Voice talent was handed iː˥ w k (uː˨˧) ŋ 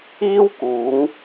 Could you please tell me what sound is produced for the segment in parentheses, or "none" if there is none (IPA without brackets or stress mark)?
uː˨˧